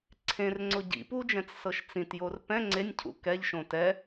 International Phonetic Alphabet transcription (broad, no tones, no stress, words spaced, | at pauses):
ǀʰẽrŋ͡ǀʊ ɟḭ pud͡ʒɛ̃t͡s sɤʃt͡sĩtjor pɛ̃ ŋ͡ǀenʲcʰṵ kɛʎʃõ tɛ